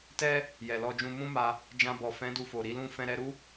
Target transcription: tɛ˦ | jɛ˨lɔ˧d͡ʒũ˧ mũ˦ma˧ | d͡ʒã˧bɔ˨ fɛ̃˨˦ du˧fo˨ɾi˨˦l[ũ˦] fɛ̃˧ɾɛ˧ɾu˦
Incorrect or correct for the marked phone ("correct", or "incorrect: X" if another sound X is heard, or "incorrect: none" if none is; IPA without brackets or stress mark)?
correct